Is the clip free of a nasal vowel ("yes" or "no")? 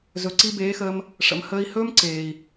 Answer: yes